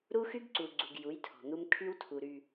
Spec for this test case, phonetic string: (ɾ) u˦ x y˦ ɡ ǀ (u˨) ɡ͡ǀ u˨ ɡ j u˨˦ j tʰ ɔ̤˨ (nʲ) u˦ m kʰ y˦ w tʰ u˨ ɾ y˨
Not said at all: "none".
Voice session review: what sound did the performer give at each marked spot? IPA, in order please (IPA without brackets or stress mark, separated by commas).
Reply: ɾ, u˨, n̪